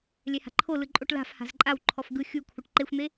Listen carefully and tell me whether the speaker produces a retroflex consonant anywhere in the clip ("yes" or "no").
yes